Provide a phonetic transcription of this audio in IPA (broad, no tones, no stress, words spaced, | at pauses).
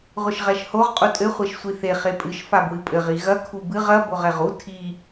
ʁʷɘʃʁɛʃhoʁ qʼutʼɘ χʷeʃsʷiθe χepʼɨʃ fabwɨpʼɘʁ iɣɐ kʰubɨʁ ɐ boʁɛʁu tʰi